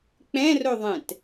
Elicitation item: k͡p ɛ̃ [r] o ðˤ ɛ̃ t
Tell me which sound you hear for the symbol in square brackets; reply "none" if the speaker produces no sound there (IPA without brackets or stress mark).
r